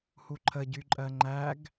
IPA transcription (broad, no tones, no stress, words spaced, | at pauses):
huǃʰə ɟyǃʼɜŋ͡ǃæɡ